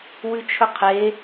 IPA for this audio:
wʉt͡ʃʰɵqʰe

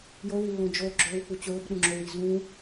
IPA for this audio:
jolʉlːõ d͡ʒoɡ͡ǁɵːwk͡pu t͡ɕɵːbɗũŋ͡ǁowi zũ

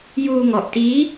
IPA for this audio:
juː˧ŋɔ˨˩ʔtiː˦˥

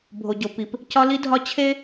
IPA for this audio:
bʱo˨ɟo˨ pi˨p | cɒ˦li˦dʱɒ˦ t͡ɕʰe˦

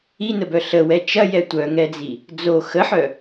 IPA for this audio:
inəbœ ɬəwɛ t͡ʃɐjɛ tʷœŋɛd͡zi | d͡zo xəħœ

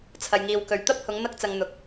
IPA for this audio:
t͡sʰɐ˨jŋiː˨wkɵ˨ɥ t̪ɐ˥p̚hʊ˨˧ŋ n̪ɐ˧k̚t͡sɐ˨ŋ n̪ʊ˨k̚

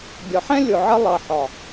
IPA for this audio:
bʲɒ˨ħɛ̃˦ lʲʊ˨ʕə˧ lˠʌ˨ħɒ˨

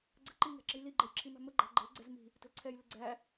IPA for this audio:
ɡ͡ǀə̤ǃiŋæ̤ ǁə̤jliɡ͡ǃɛj ǁʰimæ̤məɡ͡ǃæ̤ ɡ͡ǃə̤lɡ͡ǀɛz mi̤ | tə̤lǀʰɛjlɪ ɡ͡ǀæ

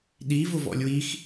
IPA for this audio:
ɗi vʊvɔ̰lʲwix

